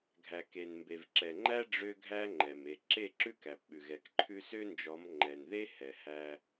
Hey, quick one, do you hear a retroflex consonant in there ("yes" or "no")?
yes